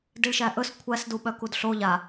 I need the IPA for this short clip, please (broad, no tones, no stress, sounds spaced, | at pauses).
d i ɭ ʃ æ ʔ ɵ s kʷʰ æ s d u ɓ œ k u d ɬ o ʎ a